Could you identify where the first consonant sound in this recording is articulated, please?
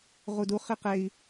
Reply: uvular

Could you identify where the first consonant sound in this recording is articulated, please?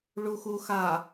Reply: retroflex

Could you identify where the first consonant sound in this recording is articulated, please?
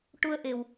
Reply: retroflex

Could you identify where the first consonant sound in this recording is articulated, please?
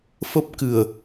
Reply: labial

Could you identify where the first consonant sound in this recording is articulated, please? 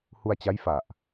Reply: glottal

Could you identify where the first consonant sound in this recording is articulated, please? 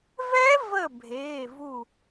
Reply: labial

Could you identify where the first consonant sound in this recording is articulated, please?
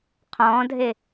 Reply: uvular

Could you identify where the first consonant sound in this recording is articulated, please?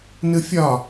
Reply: alveolar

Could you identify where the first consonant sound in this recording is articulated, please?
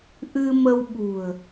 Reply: glottal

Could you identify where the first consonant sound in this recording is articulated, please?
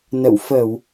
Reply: alveolar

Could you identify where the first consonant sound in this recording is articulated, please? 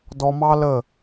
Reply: alveolar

